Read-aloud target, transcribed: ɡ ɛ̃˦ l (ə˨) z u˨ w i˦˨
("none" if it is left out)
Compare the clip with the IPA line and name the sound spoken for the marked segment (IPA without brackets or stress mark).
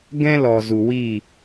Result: ɔ˨